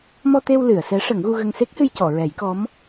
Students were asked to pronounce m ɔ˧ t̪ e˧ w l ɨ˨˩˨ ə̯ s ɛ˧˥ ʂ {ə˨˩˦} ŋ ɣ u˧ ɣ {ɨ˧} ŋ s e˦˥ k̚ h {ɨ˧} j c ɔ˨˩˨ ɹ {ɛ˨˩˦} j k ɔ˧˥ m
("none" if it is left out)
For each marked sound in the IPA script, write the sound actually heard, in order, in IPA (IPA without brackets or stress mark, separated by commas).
ə˨˩˦, ə˧, ɨ˧, ɛ˨˩˦